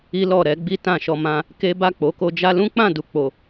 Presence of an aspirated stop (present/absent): absent